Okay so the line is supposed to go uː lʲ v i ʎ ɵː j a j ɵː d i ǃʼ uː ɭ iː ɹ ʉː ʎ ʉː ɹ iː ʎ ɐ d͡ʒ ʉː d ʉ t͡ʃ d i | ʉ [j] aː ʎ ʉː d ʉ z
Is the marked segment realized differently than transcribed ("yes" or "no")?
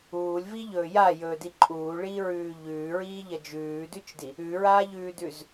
yes